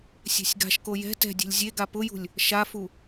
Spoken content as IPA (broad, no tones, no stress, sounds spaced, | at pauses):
sʲ ɛ̤ sʲ ɡ a̤ ʃ k o j ɛ̤ t ɛ̤ dʲ e̤ lʲ zʲ e ɡ a p ʊ j ṳ lʲ | ʃ a f u